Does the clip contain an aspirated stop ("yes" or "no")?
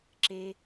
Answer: no